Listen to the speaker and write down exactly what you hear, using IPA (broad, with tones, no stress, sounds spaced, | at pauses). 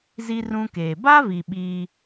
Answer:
z i˦ r ũ˦ k eː˨ b a˦ v i˨ ɓ iː˦